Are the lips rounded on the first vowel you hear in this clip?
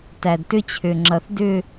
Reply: no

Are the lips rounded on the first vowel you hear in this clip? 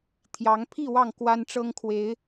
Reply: no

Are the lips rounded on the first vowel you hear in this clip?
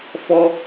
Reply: yes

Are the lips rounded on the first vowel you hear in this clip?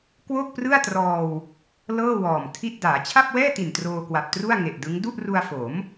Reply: yes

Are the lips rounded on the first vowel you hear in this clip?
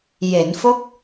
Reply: no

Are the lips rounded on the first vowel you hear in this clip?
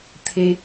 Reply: no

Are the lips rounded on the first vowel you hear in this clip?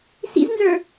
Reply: no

